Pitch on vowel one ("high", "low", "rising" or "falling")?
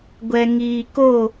low